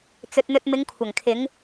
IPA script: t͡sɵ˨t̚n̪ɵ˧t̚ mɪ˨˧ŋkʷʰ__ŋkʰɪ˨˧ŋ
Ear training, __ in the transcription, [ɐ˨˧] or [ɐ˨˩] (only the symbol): ɐ˨˩